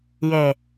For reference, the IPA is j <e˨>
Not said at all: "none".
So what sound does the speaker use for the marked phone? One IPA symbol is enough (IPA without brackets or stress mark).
e˨